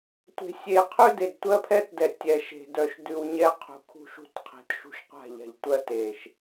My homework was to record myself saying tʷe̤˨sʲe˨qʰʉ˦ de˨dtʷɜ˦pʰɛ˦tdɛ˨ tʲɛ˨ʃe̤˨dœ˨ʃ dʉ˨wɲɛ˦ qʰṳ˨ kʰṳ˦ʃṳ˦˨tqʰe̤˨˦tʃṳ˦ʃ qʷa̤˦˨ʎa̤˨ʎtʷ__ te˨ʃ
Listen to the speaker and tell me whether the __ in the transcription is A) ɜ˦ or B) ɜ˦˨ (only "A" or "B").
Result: A